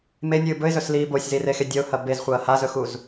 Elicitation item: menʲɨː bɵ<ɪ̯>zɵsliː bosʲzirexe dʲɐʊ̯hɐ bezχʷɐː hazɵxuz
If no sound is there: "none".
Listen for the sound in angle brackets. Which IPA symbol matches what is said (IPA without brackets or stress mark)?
ɪ̯